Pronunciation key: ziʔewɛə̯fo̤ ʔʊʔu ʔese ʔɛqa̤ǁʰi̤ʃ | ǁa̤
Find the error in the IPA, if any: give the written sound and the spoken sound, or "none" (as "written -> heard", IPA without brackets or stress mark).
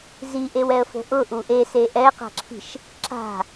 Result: none